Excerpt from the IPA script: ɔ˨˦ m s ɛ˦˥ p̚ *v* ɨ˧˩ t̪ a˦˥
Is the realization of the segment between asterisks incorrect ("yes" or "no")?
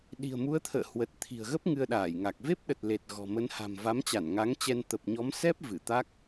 no